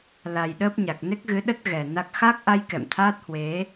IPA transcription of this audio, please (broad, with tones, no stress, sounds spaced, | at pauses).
l a˨˩ j ɗ əː˦˥ p̚ ɲ a˨˩ k̚ n e˦˥ k̚ ɣ ɨ˨˦ ɗ ə˦˥ t̚ ɣ ɛ˨˩ n a˦˥ k̚ x a˦˥ k̚ ʔ a˧ j k ɛ̰˧˨ m t̪ʰ aː˦˥ t̚ h w e˨˦